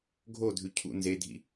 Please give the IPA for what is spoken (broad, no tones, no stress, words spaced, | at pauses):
ɡʱodʱʉ cʰṵ nzedʱḭ